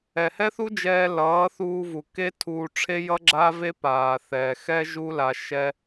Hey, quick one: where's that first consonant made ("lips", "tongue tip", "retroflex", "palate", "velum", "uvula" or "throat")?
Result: throat